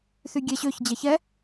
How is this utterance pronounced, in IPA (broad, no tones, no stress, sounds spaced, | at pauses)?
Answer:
θ y ɡʲ ɛ ɕ ø ç d͡ʑ ɛ ç ɛ